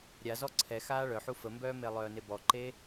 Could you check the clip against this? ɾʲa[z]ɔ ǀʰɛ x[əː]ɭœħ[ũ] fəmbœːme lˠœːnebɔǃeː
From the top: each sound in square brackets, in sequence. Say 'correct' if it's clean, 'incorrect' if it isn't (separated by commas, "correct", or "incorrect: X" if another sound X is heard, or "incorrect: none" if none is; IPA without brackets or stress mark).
correct, incorrect: aː, incorrect: u